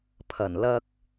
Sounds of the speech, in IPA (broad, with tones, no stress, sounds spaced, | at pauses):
pʰ ɐ˨˩ n l ɐ˧ k̚